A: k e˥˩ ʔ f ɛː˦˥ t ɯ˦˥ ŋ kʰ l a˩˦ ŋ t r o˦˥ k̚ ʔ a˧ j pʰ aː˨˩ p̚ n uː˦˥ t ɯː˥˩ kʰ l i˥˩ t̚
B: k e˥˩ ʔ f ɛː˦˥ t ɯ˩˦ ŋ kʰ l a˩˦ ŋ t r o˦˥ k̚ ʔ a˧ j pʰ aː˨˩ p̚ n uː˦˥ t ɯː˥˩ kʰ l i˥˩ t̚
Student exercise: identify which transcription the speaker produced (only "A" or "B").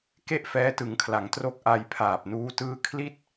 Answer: B